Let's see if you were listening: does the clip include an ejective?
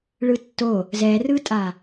yes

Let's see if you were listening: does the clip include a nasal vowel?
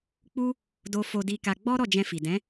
yes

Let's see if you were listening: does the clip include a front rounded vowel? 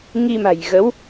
no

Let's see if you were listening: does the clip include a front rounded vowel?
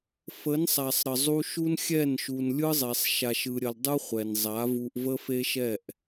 no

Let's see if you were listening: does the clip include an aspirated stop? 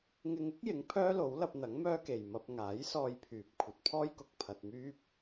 yes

